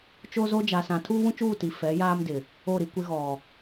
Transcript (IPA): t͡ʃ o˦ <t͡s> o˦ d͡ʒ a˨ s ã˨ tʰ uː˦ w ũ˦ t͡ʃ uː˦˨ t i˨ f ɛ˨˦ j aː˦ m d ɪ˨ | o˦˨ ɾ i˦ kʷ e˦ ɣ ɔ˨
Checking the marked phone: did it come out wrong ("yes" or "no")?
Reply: yes